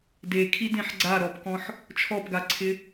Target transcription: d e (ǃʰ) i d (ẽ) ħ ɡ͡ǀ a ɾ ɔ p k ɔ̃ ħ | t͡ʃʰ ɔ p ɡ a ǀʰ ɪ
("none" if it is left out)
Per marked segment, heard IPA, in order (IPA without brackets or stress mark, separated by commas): kʰ, ẽ